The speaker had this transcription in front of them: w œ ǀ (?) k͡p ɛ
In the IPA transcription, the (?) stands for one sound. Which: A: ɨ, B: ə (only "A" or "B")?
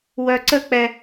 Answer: B